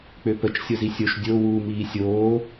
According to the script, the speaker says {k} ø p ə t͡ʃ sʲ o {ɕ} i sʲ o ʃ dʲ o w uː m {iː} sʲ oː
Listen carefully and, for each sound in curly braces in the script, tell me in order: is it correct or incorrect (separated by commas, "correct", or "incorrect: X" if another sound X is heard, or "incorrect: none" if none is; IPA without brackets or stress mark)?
incorrect: k͡p, incorrect: z, correct